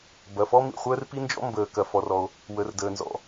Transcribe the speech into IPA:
b ɐ˩ f ɔ˥ m ḭ˩ χʷ əː˥ r p i˥ n d͡ʒ ɔ̰˥ m b əː˩ k ɐ˩ f ɔ˩ r ɔ˩ o̯ | w ə˩ r d əː˩ n z ɔ̰˩

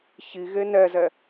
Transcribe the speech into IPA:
ç i ɣ e n ɛ z ɛ

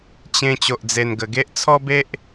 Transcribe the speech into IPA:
t͡ɕ ẽ˧ t͡ɕ o˨ ʔ d͡z e˨˩ n ɡ ə˨˩ ɡ e˦ ʔ t͡sʰ ɔ˦ b e˦ ʔ

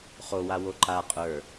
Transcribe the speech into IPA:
χ o w a w o ǃ a qʼ ə˞

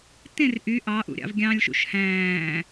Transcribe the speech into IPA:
t ẽ r ʔ y ʔ ɑ ʔ ṵ ɾʲ ɑ̰ v ɡʲ ɑ̃ lʲ ʃ ṵ ʃ h æ̃ː

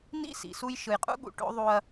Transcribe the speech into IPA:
n ḭ˦ s ḭ˨ s u˦ j ʃ ɯ˨ j qʼ ṵ˦ ɠ ṵ˨ ʈ o̰˦ ðˤ u˦ ɐ̯

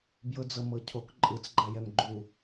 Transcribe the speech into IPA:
b j ɤ d͡z ɤ m ɤ cʰ o k ǃʼ ɯ t͡s ɡ͡ǃ a j ɛ m ɡ͡ǃ u

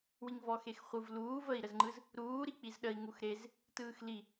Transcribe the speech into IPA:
w i ŋ v ɔ x e x χʷ ɯ v l uː v ə i̯ ɾ ə z ŋ͡ǃ ɯ z | ɾ uː ɾ i k͡p i z ɗ ə i̯ ŋ u x ɾ e z | t ɯː x l i

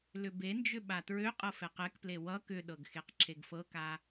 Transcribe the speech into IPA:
l ʏ b e n d͡ʒ ʏ ɓ a t ɹ ø qʼ ɤ f ɛ q ɛ k p l e w ʌ k ʏ ɗ ɤ ɡ x e q ǁʰ e ɡ f ɤ k a

